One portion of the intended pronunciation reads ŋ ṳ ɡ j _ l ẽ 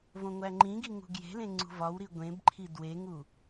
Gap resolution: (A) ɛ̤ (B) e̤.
B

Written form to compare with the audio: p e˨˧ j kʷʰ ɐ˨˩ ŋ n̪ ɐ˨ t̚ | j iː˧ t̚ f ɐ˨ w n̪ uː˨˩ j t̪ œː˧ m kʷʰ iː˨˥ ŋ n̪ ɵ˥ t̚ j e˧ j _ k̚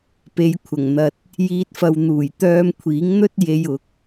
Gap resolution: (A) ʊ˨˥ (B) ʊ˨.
A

